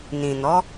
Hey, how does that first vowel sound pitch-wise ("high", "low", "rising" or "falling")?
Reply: low